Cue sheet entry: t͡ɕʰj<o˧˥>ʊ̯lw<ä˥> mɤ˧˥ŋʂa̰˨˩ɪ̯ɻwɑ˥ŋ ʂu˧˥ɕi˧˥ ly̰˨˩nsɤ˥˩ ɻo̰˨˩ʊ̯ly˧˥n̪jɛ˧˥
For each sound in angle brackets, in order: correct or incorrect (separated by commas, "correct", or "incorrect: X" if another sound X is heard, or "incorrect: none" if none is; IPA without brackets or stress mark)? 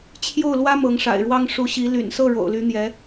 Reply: incorrect: o˥˩, correct